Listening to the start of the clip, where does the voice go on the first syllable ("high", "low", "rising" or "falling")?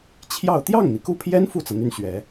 falling